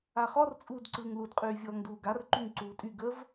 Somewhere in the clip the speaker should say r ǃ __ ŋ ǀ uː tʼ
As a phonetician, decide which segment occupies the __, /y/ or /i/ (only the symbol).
y